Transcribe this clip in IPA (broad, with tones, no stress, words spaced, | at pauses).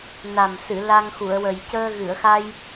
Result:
na˨˩msɨ˨˩˨ la˧ŋxu˨˩˨ə̯wə˨˩j cəː˧ɣɨ˨˩˨ə̯xa˧j